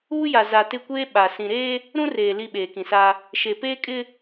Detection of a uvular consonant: absent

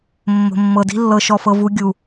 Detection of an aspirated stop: absent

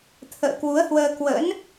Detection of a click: absent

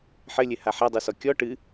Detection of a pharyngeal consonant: present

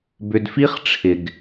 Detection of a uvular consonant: present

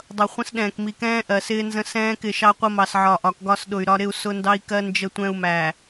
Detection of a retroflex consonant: absent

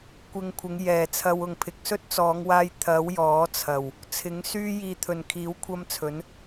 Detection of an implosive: absent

